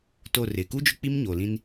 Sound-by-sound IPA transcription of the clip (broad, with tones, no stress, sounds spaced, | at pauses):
t o˦˨ r ɪ˨ k u˦ d͡ʒ ʊ˦ k͡p i˦ m ɲ oː˨ l ĩ˦ n